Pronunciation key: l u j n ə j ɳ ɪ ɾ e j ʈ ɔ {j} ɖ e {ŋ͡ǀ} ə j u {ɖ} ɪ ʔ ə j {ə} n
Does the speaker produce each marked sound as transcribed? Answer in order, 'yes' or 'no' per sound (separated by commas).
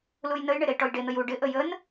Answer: yes, no, yes, yes